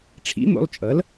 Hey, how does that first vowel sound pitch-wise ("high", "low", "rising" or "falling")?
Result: rising